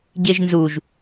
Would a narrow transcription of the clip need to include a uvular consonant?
no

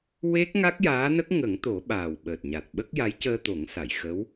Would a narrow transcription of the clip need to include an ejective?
no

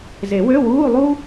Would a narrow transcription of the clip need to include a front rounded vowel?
yes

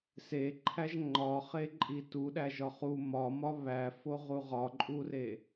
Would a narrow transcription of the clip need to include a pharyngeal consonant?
no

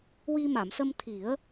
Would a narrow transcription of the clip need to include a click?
no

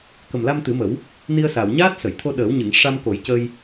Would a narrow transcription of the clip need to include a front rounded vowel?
no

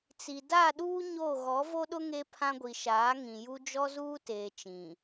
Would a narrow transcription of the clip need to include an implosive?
yes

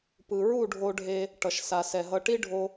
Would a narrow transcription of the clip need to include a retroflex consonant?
yes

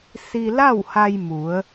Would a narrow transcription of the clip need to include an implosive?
no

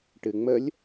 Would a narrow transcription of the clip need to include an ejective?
no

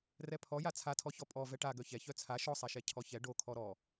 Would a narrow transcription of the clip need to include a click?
no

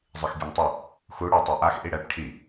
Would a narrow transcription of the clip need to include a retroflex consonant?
yes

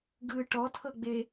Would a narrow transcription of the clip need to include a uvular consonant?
no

